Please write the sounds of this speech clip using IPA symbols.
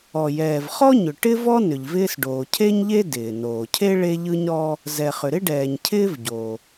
ɔ˩jɛː˩vχɔ˥ɲʏ˩ ʈɪ˥vɔ˥ nʏ˩ʎvɪː˥sɖoː˩ cʰe˥ɲʎe˥ dɪː˩ noː˩cʰe˥ ɭe˥ʎɯ˥ɲɾɔ˥ | zɛ˩χʏ˩ɾɪ˥ɖɛː˩ɲ cʰɪː˥vɟo˩

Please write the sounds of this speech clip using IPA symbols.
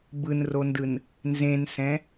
bɯnrondɯn | nzẽnsɛ̃

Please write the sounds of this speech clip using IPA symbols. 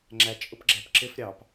ŋ͡ǁæ t͡ʃʼʊpɡ͡ǁæpǁɪf ɾʲɑp

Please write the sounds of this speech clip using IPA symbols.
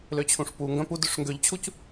løt͡ɕʰũʂpu ŋɡœ̃pudøʂ ŋɡøʎt͡ɕʰuc

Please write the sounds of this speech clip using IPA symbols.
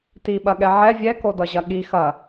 tiɓɐɠɛ ʕɛ vʲɛkodʌʑɐ ɠi xɐ

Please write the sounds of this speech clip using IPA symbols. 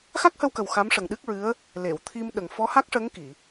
xa˦˥k̚hə˧wkə˨˩w xa˧˥mʂə˨˩ŋɗɨ˦˥k̚ɹɨ˧˥ə̯ | le˨˩˨wt̪ʰi˧mɗə˨˩ŋ fɔ˧˥ha˦˥k̚ʂə˧˥ŋ ki˨˩˨

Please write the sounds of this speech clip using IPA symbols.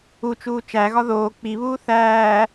ut͡ʃuː t͡ʃæɣɒ ðoː k͡piβuː θæː

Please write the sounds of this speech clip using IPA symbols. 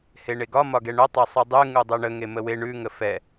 heɳeɡɒ mɒɡɛɳœ tˤesˤʉdˤʉ ŋudˤuɳə ŋeməwe ɳʉ ŋəfɛ

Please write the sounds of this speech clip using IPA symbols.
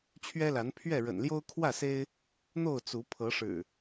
t͡ɕʰɥɛ˦la˨˦npʰɥɛ˥˨ ɻə̰˨˩nljo˦ʊ̯ kʰwä˥˨se˦ɪ̯ | n̪o˥˨ʊ̯t͡su˨˦ pʰɤ˨˦ʂɻ̩˨˩

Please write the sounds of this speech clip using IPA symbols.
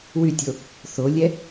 wytʲo | θolʲɛ

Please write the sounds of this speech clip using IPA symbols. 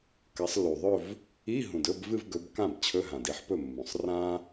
kɐ˨˦sˤlːu˨˩ðˤɵ˥˧v | i˧˥˧ ɦũ˨˩dɵ˧˥˧b vɨ˥˧v ɡɵ˨˦bkã˥˩b t͡ɕʰɵ˧˥˧ɦã˨˩di˥ħpɵ˥˩ mːũ˨˩sˤ rã˥

